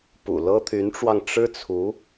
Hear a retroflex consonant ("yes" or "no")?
yes